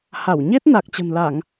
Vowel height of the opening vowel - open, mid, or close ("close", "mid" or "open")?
open